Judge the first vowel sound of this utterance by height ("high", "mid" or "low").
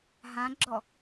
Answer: low